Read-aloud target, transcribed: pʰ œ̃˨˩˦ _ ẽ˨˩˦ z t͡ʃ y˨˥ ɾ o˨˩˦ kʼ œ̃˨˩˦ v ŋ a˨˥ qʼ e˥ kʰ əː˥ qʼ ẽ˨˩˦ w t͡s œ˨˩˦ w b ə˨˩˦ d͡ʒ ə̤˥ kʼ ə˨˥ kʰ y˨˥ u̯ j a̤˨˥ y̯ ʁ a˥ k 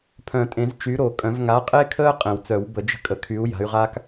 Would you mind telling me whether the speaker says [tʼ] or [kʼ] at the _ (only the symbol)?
tʼ